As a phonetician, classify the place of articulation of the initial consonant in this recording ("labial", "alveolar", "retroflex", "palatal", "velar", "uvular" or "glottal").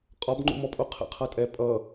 uvular